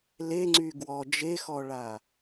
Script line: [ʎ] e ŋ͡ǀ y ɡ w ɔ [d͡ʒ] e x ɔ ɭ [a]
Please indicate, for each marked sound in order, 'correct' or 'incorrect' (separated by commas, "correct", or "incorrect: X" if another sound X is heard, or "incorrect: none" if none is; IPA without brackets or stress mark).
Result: incorrect: l, correct, correct